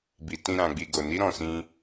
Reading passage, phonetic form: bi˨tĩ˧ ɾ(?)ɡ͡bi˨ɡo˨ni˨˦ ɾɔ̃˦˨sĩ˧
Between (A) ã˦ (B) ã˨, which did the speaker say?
B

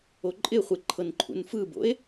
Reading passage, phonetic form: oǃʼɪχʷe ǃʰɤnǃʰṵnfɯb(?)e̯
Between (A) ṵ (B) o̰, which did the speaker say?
B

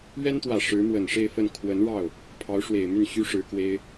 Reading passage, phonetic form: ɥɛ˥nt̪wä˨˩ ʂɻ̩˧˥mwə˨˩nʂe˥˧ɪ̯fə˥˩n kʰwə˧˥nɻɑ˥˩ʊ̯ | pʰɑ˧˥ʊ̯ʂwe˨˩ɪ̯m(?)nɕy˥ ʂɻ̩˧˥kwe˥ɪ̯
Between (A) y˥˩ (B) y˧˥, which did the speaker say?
A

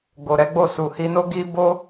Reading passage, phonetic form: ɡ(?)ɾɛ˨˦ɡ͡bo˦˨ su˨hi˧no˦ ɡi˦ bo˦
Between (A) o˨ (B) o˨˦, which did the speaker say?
A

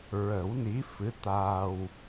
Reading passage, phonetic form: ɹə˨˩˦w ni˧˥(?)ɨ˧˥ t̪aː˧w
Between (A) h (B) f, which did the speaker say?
B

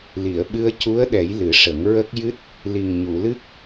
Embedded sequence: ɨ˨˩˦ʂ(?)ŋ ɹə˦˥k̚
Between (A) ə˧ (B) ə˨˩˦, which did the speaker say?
B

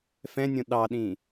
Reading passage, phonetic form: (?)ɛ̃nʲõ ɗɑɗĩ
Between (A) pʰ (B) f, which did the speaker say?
B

